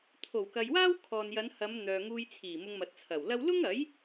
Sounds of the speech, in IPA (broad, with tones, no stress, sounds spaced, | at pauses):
t̪ʰ o˨˩ w k ɐ˨ j w aː˥ w kʰ ɔː˨ n j ɐ˨˧ n h ɐ˨˧ m n̪ œː˨ ŋ uː˧ j t͡sʰ iː˨˩ m ʊ˧ ŋ m ɐ˨ t̚ t͡sʰ ɐ˨˩ w l ɐ˥ w l ʊ˥ ŋ ɐ˨˥ j